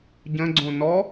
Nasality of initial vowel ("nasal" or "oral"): nasal